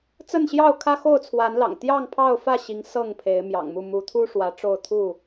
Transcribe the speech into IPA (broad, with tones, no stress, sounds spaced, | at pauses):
t͡s ə˥˨ n ɕ j ɑ˥˨ ʊ̯ kʰ ä˦ x o˥˨ ʊ̯ t͡sʰ w a˨˦ n l ɑ̰˨˩ ŋ t̪ j ɑ˥˨ ŋ pʰ ɑ˥˨ ʊ̯ f ä˥˨ ɕ i˨˦ ŋ s ɤ˥˨ ŋ pʰ e˨˦ ɪ̯ m j ɑ̰˨˩ ŋ m u˥˨ m u˨˦ t̪ʰ u˦ ʂ w ä˨˦ ʈ͡ʂ o˥˨ ʊ̯ t̪ʰ u˥˨